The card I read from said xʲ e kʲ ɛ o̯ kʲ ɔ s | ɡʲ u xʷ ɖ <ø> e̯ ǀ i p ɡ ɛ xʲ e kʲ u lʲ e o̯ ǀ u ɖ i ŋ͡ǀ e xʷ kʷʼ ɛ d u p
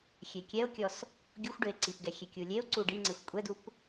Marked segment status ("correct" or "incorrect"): incorrect